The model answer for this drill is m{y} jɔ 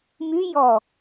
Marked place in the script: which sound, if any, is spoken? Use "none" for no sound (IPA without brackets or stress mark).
y